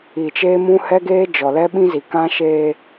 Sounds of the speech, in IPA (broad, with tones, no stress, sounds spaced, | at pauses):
i˨ t͡ʃ eː˦ m ũ˦ h ɛ˦ ɡ eː˦ d͡ʒ ɔ˨ l ɛ˦ ɓ ĩ˦ z i˨ k ã˦ ʃ eː˦